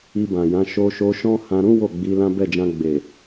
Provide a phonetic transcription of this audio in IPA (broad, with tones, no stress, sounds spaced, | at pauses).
i˧ b ã˨ j ã˨˦ ʃ o˧ ʃ o˧ ʃ ɔ̃˦ h ã˧ ɾ ũ˦ w o˦˨ ɡ͡b i˨˦ l ã˦ b ɛ˦˨ d͡ʒ ã˧ ɡ͡b e˨